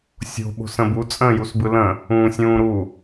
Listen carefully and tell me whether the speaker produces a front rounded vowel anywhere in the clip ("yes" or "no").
no